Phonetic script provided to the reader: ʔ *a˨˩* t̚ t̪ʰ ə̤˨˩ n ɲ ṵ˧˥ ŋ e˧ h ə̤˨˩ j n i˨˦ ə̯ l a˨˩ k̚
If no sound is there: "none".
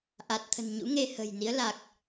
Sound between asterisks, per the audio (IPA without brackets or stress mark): a˨˩